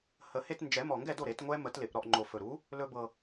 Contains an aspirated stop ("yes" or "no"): no